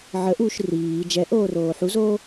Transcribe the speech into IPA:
ʕ ə ʔ uː ʃ r iː d͡ʒ ɛ ʔ oː r oː ħ u z oː

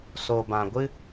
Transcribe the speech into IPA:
s o˨ b ã˨ ɡʷ ɨ˦

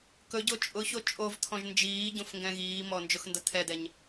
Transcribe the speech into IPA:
k ɵ ɟ o t͡ʃʼ ʊ ç o t͡ʃʼ o v t̪ʰ ɔ̃ ʒ n d͡ʒ iː ɟ õ f ŋ ɡ ɛ̃ ɣ iː m ɔ n d͡ʒ ʊ x n d ʌ t̪ʰ ɛ d̪ ɛ ɲ

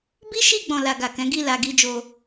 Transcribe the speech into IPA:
b i˦ ʃ i˦˨ ɡ͡b ɔ̃˨ l a˨ ɡ a˨ k ɛ̃˨˦ ɡ i˦˨ l a˧ ɡ i˦ d͡ʒ o˧

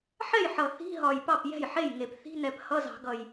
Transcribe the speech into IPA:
ħ ɛ˥˩ j ħ ʌ˨˩ θ i̤˧˥˧ ɦ ɒ˨˩ j p ɑ˥˩ p j ɛ̤˥˩ j ħ e˥˩ j ŋ e˨˩˦ p θ i̤˧˥˧ n ɛ˨˩ p h ʌ˧˥˧ z ɑ̤˨˩˦ ɡ ʌ˨˩ j

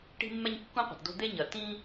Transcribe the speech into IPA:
ʈ i̤˦ mː ɛ˦ ɲ kː ũ˦ qʷ ɛ̤˨ t d o̤˦ d̪ e˦ ɲ ɐ˨ t ĩ˦

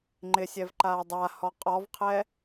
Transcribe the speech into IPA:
ŋ͡ǃ ɪ sʲ ɛ v ǃ aː dˤ a h ɔ qʼ ɔ v qʰ ɛ

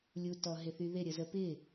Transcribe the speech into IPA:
lʲ u t ɔ ɦ ɪ θ y ð ɪ ɾʲ ə z ə p ɪ

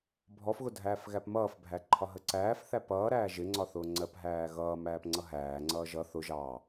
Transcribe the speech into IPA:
bʱ ɔ f ɣ ʊ dʱ æː f ɣ æ p m ʌː f bʱ æ ǃʰ ɒ ɦ ə ǀ æː f θ æ p ʌː ɾ æː ʒ ɪ ŋ͡ǀ ɒ θ ʊː ŋ͡ǀ ɜ p ɦ æː ɣ ʌː m æː p ŋ͡ǀ ʌ ɦ æː ŋ͡ǀ ʌː ʒ ʌ θ ʊ ʒ ɑ

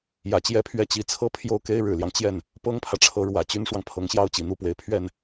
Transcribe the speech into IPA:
j ä˨˩ t͡ɕ j ɛ˥˧ pʰ ɥ ɛ˥˩ t͡ɕ i˧˥ t͡sʰ ɤ˥ pʰ j o˥˩ ʊ̯ k e˥ ɪ̯ ɻ ɻ̩˨˩ l j ɑ˦ ŋ t͡ɕ j ɛ˥˩ n | p ɤ˥ ŋ pʰ ä˨ ʈ͡ʂʰ ɤ˧˥ ɻ w ä˨˩ t͡ɕ y˥ n ʂ w ɑ˨ ŋ pʰ ɤ˧˥ ŋ ɕ j ɑ˥ ʊ̯ t͡ɕ i˨˩ n̪ u˥˩ p w e˧˥ ɪ̯ pʰ ɥ ɛ˥˩ n

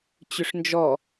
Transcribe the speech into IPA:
t͡ɕ ʏ ʂ n d͡ʒ ɔ

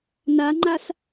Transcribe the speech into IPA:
n a ŋ͡ǃ a s

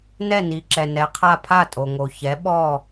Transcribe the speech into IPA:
n ɛ˥˩ n i˩ ǁ ɛ˩ n ɛ˩˥ qʰ a˥˧ pʰ a˥˩ tʼ o˩ ŋ o˩ ç ɛ˩˥ ɓ ɔ˥˩

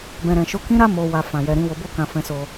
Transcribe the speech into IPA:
b ɛ̃˨ ɾ ɛ̃˨ ʃ o˨˦ k ĩ˦ ɾ a˦ m o˧ w a˧ f ã˨ j ɛ˨ ɾ ĩ˨˦ w o˧ b o˦ k ã˧ f ɛ̃˧ s o˧

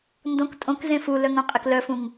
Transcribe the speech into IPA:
n d õ k tʼ õ k z ẽ f u l œ ŋ õ qʼ e k l œ f ũ ŋ

